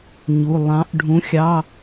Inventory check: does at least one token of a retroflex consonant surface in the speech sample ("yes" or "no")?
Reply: yes